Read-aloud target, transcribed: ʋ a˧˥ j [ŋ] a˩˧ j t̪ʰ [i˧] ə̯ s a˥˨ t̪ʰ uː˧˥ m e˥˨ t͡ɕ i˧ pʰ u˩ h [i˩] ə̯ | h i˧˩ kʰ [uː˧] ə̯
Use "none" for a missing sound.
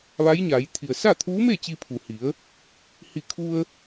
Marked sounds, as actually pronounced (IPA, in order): ɲ, i˩, i˩˧, u˧

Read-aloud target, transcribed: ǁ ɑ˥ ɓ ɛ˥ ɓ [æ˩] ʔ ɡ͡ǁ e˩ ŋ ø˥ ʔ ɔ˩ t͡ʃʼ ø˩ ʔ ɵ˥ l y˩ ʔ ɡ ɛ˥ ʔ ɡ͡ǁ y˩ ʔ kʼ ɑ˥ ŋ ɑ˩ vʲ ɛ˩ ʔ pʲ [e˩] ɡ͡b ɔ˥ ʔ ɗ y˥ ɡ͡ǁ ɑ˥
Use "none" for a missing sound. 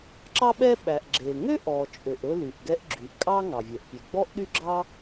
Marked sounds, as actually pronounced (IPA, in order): æ˩, e˩

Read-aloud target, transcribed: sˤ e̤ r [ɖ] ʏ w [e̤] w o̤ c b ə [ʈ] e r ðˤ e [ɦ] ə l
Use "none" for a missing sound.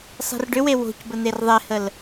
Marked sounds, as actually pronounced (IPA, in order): ɖ, e, n̪, h

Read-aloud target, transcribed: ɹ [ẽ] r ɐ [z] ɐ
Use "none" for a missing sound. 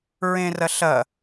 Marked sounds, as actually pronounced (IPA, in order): ẽ, ɬ

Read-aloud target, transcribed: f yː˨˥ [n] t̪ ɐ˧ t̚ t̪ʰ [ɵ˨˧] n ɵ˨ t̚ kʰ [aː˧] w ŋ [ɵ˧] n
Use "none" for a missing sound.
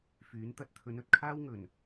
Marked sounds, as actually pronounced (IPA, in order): n, ɵ˨˧, aː˥, ɵ˨˩

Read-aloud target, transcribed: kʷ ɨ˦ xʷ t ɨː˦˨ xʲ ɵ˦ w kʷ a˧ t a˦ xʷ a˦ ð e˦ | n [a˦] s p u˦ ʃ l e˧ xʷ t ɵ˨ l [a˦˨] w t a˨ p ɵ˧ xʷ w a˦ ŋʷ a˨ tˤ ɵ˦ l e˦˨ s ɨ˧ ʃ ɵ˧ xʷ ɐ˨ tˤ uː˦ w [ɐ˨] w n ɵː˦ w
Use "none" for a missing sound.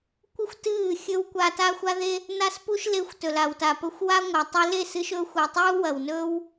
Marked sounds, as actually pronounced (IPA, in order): a˦, a˨, ɐ˨

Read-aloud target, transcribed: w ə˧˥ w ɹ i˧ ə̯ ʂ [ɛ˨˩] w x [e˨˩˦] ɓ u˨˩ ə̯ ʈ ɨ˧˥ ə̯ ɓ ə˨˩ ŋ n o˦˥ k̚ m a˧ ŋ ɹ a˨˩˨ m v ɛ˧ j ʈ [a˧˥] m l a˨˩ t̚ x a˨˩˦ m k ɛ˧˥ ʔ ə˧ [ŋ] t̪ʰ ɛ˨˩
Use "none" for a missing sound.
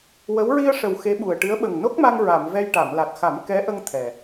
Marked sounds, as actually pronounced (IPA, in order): ə˨˩, e˧˥, a˨˩˨, ŋ

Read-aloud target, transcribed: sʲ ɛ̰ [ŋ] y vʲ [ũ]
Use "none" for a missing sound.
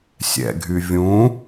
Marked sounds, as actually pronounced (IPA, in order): ɡʱ, ũ

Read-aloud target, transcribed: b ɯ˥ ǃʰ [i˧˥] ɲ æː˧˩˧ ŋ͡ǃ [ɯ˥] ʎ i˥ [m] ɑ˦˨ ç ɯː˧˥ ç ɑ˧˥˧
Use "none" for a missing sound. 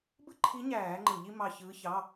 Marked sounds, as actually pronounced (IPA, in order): i˧˥, ɯ˧˩˧, m

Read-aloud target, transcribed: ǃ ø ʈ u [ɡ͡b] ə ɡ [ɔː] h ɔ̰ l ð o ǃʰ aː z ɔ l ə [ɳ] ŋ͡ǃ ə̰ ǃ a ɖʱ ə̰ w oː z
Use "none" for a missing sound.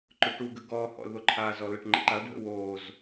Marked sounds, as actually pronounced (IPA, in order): ɡ, ɔː, ʈ

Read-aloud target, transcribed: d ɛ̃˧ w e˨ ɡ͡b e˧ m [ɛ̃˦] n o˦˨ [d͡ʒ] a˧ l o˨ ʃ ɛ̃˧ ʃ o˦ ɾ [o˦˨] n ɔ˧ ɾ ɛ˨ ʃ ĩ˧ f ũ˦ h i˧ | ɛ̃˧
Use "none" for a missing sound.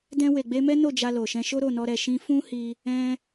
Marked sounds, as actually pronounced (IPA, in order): ɛ˦, d͡ʒ, o˦˨

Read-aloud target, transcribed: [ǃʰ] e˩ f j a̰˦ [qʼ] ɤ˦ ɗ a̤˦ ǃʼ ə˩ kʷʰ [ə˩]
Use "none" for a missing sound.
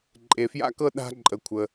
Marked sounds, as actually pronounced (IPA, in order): ǃʼ, k, ə˩

